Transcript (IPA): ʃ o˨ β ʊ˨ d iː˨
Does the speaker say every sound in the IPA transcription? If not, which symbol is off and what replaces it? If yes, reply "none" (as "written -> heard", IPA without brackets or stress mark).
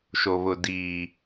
none